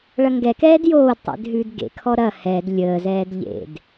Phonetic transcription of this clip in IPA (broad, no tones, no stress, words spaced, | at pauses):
ɭɐŋɡɛkɛːd joːdtˤḛd ɦʉdɡḛkʰɔ ɾɐ hɛd lʲəːzɛːd ʎḛd